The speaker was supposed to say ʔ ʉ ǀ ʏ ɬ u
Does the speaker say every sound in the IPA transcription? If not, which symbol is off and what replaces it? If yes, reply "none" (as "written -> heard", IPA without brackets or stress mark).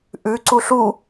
ʏ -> u